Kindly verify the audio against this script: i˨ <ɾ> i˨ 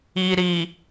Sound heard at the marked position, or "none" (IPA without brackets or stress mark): ɾ